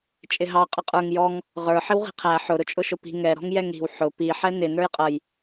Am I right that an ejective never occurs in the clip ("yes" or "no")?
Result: no